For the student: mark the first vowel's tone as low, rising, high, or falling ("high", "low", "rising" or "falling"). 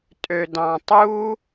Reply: low